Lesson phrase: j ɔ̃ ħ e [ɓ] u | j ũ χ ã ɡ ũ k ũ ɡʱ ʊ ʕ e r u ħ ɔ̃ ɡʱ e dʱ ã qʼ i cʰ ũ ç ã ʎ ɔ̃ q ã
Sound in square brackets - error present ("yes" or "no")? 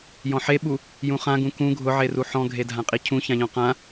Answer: no